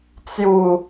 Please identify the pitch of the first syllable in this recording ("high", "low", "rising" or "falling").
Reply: low